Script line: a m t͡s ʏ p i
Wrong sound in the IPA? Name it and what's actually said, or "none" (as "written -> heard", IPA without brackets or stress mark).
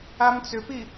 none